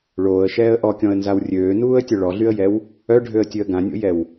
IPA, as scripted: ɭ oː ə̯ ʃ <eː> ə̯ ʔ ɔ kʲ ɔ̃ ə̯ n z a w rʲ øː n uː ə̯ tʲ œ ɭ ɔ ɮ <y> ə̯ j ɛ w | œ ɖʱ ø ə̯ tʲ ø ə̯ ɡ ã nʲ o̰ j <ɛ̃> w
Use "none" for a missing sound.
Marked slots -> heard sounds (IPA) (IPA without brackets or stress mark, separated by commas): ɛː, y, ɛ